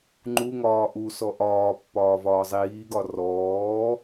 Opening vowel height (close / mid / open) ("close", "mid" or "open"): close